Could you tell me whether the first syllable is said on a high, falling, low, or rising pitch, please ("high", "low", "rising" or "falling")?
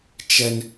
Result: high